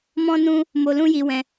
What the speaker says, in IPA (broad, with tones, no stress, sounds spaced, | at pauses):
m ɔ̃˦ n ũ˦ | m o˧ l ũ˦ j i˧ w ɛ̃˧